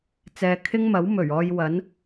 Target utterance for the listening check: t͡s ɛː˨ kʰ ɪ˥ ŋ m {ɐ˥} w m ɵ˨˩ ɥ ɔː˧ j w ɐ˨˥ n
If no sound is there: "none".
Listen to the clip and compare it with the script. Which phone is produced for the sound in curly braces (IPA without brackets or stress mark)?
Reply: ɐ˨˥